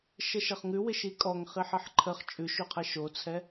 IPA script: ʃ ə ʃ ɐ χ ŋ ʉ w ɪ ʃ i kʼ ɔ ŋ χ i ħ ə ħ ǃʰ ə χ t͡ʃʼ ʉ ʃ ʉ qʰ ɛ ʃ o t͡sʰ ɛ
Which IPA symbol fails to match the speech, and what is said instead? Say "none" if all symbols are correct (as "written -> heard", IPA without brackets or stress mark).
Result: none